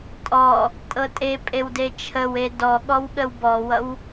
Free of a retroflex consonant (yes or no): yes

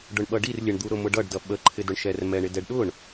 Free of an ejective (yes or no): yes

